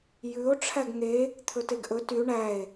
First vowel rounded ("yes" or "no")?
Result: yes